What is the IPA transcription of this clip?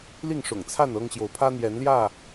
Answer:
l i˥˨ ŋ ʂ ʊ̰˨˩ ŋ t͡sʰ a˥˨ n ɤ˦ ŋ ɕ j o˨˦ ʊ̯ pʰ ä˦ n̪ j ɛ˨˦ n l j ä˥˨

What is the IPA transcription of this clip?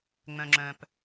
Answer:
ŋ͡m œ̃˨ ŋ͡ǁ œ̃˨ p

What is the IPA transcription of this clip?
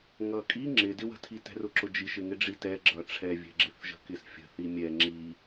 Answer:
ŋ ʌ kʼ i ŋ͡ǁ ɪ d ɪ w ə̤ tʰ i t ɛ̤ r ʊ ǁ ʊ d͡ʒ i ʃ ɪ ŋ ɪ ɖ͡ʐ i t ɛ ɡ͡ǁ ʌ ʈ͡ʂʰ ɛ vʲ ɛ̤ ɡ͡ǁ ɪ θ ʒ ə̤ k ɪ s fʲ ə̤ θ i mʲ ɛ ŋ͡ǁ i

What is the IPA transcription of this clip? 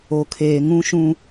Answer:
o˨ kʰ eː˨ ŋ ũ˦ ʃ ũ˦

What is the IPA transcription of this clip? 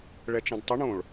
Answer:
ɭ ɛ t͡ʃ ɐ̃ d tˤ ɘ ɳ õ ɭ

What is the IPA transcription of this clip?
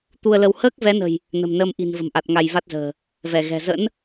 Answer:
t̪ u˧ ə̯ l ə˧ w h əː˦˥ k̚ v ɛ˨˦ n ə̤˨˩ j | n ə̤˨˩ m n əː˧ m ʔ i̤˨˩ n v ə̤˨˩ m ʔ a˨˩ t̚ ŋ a˧ j v a˦˥ t̚ z ə̤ː˨˩ | v ɛ˧˩ ɣ ɛ̤˨˩ z ə̰˧˥ n

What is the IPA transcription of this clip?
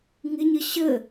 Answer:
ŋ ɪ ɲ ə ɕ ə

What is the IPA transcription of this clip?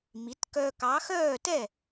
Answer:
m i˩˥ t k œ˧ k ɑ˩˥ x œː˥˩ t ɛ˥˩

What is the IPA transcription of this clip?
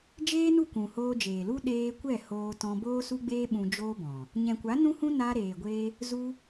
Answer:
d͡ʒ eː˦ n u˦˨ kʷ ũ˨ h oː˧ d͡ʒ eː˨ l u˦ ɗ eː˧ kʷ ɛ˦˨ h oː˧ t ɔ̃˧ b oː˦ s u˦ ɡ͡b eː˦ ɓ ũ˧ d͡ʒ oː˦ b ɔ̃˨ | ɲ ɛ̃˨ kʷ a˨˦ n ũ˦ h ũ˦ n a˧ ɾ eː˨ ɡʷ e˧ | z u˦

